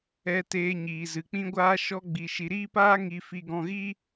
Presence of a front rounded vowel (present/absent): absent